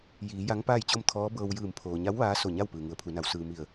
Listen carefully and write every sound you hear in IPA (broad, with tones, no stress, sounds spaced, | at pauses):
j iː˩˧ j a˧˥ ŋ p aː˥˨ j t͡ɕ o˥˨ m t̪ʰ ɔː˧˥ b ɤː˧ w j ɯː˧˩ m pʰ oː˩ ɲ a˧˥ w ʋ aː˧˥ s o˧˩ ɲ a˥˨ w p ɯː˩ ŋ u˩˧ ə̯ pʰ u˩˧ n a˩˧ w s ɯː˩ m i˧˩ ə̯